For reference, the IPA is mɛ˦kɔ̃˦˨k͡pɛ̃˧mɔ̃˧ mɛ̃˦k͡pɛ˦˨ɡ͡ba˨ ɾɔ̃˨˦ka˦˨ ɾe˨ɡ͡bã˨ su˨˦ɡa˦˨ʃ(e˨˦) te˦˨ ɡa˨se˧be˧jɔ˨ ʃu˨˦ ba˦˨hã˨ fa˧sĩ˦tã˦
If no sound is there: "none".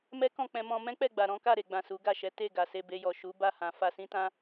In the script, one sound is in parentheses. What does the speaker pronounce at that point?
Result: ɛ˨˦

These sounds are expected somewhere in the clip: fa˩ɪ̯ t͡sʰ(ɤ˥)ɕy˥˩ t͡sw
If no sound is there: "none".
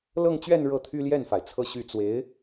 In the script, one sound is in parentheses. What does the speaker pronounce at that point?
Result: ɤ˥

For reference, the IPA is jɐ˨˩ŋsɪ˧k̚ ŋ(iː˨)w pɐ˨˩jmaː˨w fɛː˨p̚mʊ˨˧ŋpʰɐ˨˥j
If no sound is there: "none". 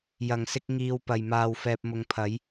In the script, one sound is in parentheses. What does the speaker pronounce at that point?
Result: iː˨˧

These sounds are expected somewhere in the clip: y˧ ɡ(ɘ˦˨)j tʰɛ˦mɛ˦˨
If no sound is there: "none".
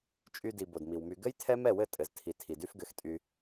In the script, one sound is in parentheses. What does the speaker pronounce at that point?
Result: ɘ˦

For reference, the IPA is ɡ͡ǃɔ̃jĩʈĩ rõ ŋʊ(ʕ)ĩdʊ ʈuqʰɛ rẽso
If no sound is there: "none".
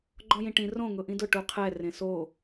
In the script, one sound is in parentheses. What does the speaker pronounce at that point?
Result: ʔ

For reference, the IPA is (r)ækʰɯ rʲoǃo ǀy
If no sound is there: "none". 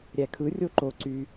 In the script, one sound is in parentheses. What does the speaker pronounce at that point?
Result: ɾʲ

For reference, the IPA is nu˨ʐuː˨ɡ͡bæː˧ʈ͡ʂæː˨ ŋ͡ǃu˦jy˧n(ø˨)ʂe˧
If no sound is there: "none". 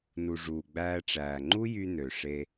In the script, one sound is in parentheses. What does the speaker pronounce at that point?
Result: ø˨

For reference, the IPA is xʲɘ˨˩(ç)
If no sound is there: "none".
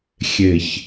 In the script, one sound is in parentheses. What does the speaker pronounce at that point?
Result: ç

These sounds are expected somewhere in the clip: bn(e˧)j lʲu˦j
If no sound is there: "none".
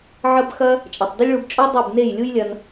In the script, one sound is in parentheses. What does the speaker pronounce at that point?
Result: e˦˨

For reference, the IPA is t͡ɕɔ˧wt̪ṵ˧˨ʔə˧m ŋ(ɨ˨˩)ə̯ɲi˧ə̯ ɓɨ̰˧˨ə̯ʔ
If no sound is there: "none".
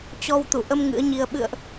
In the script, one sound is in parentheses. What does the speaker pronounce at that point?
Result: ɨ̰˧˥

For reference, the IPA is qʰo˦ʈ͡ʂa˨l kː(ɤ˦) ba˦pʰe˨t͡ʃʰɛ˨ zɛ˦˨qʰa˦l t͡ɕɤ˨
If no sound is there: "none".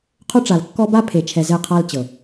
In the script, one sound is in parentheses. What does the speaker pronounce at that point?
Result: ɔ˦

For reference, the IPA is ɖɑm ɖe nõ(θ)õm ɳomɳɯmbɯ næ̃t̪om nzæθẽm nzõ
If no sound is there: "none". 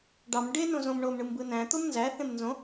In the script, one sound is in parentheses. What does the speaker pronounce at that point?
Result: z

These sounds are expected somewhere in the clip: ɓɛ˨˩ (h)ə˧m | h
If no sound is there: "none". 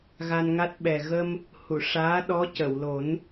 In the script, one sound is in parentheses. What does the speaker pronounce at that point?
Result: ɣ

